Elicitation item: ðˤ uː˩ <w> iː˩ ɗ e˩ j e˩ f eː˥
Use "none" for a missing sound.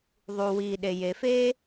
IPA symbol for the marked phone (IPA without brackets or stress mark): w